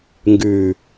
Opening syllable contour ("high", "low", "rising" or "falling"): low